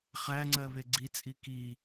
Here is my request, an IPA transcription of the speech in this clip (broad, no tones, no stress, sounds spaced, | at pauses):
χ æ ŋ͡ǀ ɜ β e ɡ͡ǀ i t͡sʼ i k i